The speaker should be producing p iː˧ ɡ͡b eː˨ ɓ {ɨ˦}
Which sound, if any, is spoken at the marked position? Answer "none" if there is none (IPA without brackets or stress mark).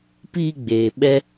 ɛ˦